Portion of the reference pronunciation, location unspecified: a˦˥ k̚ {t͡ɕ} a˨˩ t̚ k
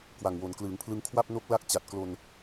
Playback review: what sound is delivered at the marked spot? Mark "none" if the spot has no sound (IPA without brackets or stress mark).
t͡ɕ